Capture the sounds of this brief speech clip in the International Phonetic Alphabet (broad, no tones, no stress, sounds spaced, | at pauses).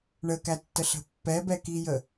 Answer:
ɳ ə k æ tː ə ɬ ə̤ pː ɛ b ɛ k i j ə